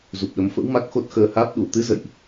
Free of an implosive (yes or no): no